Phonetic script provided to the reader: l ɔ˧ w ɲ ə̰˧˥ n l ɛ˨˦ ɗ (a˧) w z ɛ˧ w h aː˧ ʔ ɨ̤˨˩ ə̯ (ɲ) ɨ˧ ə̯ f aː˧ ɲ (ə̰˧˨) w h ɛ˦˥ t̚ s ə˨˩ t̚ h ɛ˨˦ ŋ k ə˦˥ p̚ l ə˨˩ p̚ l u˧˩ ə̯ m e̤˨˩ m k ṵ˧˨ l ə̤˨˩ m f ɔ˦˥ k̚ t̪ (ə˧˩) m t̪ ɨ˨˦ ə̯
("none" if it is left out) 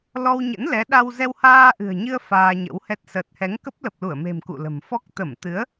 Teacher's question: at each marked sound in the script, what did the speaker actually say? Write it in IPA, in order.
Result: a˧, ɲ, ə̰˧˥, ə˧˩

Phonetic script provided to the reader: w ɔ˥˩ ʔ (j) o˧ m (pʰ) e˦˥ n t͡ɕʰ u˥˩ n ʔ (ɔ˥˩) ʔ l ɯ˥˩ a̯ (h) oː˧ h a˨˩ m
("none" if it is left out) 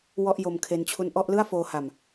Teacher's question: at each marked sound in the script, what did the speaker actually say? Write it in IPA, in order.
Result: j, kʰ, ɔ˥˩, f

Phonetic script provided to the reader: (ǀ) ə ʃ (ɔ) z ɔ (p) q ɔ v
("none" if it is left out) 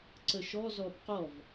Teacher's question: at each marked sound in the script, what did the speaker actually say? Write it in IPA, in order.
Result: ǀ, ɔ, p

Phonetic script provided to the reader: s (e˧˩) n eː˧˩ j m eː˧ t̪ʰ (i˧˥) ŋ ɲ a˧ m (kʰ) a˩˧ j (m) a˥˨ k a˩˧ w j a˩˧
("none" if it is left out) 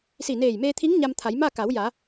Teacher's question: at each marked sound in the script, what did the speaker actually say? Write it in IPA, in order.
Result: i˧˩, i˧˥, t̪ʰ, m

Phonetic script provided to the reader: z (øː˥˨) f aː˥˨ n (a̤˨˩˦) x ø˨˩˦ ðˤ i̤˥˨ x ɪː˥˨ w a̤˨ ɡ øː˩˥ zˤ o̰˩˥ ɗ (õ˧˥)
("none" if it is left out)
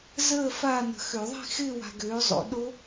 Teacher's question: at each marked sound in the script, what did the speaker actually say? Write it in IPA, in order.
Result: əː˥˨, ə̤˨˩˦, o˧˥

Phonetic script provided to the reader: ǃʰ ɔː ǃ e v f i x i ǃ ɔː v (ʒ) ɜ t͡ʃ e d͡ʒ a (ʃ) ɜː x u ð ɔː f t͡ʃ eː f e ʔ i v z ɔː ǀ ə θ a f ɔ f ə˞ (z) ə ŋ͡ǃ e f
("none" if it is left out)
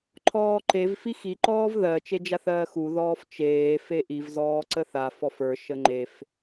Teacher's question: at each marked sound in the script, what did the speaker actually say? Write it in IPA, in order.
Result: ð, θ, ʃ

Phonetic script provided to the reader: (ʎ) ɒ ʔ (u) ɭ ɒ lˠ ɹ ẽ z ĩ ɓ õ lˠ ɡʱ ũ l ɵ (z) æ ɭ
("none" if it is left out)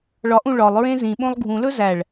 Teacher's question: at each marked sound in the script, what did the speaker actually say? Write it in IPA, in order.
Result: ɭ, ũ, z

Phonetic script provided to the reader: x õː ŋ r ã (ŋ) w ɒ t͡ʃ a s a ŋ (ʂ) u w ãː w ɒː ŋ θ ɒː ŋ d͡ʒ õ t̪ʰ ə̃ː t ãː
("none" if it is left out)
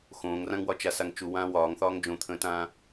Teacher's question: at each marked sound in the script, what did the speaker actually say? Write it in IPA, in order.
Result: ŋ, t͡ʃ

